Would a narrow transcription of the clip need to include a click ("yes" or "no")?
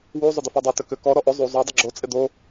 yes